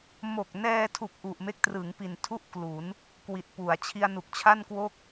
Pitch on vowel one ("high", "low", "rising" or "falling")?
low